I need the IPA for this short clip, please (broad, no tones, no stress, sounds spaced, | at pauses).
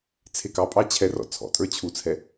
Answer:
t͡sʰ e k ɑ pʼ ɑ t͡ɕʰ ɛ r ɔ̰ t͡sʰ ɔ̰ tʼ ə˞ t͡ɕʰ u t͡sʰ ɛ